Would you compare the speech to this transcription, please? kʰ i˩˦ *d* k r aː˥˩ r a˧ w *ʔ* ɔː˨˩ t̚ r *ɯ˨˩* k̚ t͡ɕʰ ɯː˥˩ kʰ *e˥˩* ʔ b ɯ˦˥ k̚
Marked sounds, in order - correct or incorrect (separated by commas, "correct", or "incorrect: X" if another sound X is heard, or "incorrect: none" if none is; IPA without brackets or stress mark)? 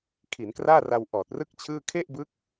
incorrect: n, correct, incorrect: ɯ˥˩, correct